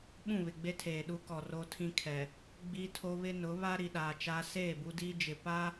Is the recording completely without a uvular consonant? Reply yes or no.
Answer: yes